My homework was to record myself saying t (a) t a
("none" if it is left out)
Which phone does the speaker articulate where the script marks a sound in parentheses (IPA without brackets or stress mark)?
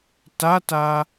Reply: a